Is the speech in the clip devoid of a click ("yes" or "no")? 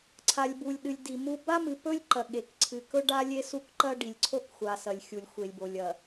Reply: no